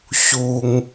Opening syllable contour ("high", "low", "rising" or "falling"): high